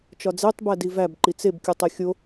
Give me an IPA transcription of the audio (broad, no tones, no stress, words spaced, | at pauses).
t͡ʃɒd͡zetˤ bædivæb ǃit͡seb kʲutˤexʲo